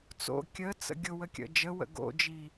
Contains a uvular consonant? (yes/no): no